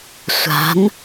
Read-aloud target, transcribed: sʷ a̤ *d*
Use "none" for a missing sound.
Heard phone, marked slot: n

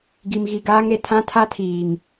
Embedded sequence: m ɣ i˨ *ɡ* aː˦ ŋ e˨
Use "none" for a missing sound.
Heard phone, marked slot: ɡ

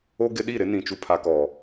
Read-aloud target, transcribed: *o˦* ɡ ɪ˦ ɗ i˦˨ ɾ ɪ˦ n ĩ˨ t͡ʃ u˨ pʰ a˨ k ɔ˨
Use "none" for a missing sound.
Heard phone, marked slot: o˦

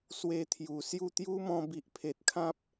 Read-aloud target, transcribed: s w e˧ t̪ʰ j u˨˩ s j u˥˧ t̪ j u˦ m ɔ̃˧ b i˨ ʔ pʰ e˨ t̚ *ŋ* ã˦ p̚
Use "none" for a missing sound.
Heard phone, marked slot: kʰ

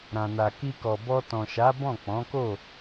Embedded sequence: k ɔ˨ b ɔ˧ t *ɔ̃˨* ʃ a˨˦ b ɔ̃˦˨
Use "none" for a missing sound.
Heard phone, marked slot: ɔ̃˨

